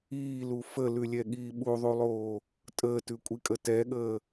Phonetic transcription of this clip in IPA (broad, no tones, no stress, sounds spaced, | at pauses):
iː l u f ə l ʉ lʲ ɛ ɠ iː ɓ u ðˤ u lˠ oː | tʼ əː t ʉ kʷʼ i kʼ ə t ɛ ɠ əː